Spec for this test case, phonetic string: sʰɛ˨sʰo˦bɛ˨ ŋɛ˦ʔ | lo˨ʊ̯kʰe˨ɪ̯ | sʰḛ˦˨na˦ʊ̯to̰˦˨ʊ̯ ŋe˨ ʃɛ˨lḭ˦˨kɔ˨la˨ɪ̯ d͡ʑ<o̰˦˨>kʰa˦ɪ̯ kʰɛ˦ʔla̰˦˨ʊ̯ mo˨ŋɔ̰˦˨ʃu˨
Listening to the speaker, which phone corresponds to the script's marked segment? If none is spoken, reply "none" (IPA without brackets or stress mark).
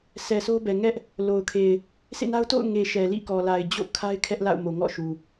o̰˦˨